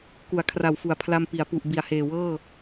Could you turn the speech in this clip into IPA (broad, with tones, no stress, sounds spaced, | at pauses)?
k u˩˦ a̯ kʰ r a˨˩ w f u˨˩ a̯ pʰ l a˧ m p i˩˦ a̯ p u˨˩ ʔ b i˨˩ a̯ h eː˨˩ w ɤː˥˩